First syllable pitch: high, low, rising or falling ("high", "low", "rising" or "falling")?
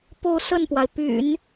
falling